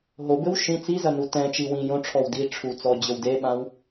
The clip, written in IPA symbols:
ɦ o b ɘ w ʃ ĩ t͡s i z ɐ n u t ɛ̃ t͡ʃ i w ĩ j õ ʈ͡ʂʰ ɔ w d i ʈ͡ʂʰ u t͡s ɔ d͡ʑ ɘ w d e ɓ ã w

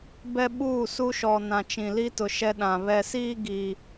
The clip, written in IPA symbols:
b ɛ˦ ɓ uː˦˨ s u˦ ʃ ɔ˨ n ã˨ t͡ʃ ĩ˨ l i˦ t ʊ˨ ʃ ɛ˦ ɗ ã˨ β ɛ˨ s iː˦ ɡ iː˨

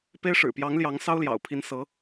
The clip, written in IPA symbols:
p e˥ ɪ̯ ʂ ɻ̩˨˩ p j ɑ˧˥ ŋ l j ɑ˧˥ ŋ s ɑ˥ ʊ̯ l j ɑ̰˨˩ ʊ̯ pʰ i˧˥ n s ɤ˧˥

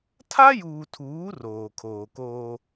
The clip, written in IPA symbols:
tʰ a˦ j uː˨ tʰ uː˨˦ r oː˨ kʰ oː˨ k oː˦

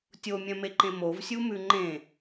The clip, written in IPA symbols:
tʲ o mʲ œ̃ m e ǃ ẽ m o v sʲ u m ʉ ŋ͡ǃ ẽ

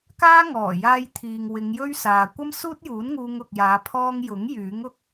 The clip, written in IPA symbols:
k aː˥ ŋ ɔː˨˩ j aː˧ j t̪ʰ iː˨ ŋ w ɪ˨˧ ŋ j ɵ˥ ɥ s aː˨ kʷ ɐ˥ m s uː˥ t̚ j uː˨˥ n ŋ uː˧ ŋ ʊ˨ k̚ j aː˨˧ pʰ ɔː˧ ŋ j ʊ˨˥ ŋ j yː˨˥ ŋ ʊ˧ k̚

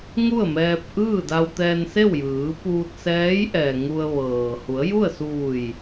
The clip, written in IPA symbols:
ŋ u˥˨ ə̯ m ɛː˧ p̚ ʔ ɯː˥˨ d a˧ w t̪ ɛː˧ n s e˥˨ w j ɯː˩˧ p uː˧ t̚ s ɛː˧˥ j ʔ ɛː˩ ŋ u˧ ə̯ ʋ ɤː˩ h u˩˧ ə̯ j u˥˨ ə̯ s uː˧˩ j

